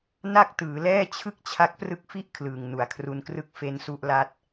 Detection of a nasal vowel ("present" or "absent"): absent